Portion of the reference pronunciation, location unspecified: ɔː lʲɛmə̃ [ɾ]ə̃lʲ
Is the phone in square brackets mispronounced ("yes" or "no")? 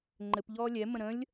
no